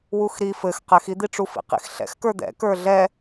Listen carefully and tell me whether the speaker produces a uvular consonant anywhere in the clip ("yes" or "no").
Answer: yes